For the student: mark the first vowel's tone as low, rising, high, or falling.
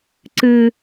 high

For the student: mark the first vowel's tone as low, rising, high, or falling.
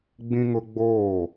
high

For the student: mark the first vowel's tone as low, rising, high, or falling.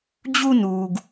high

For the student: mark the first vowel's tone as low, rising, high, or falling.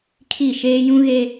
falling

